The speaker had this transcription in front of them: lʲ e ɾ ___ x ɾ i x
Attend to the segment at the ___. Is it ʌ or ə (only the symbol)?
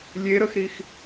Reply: ə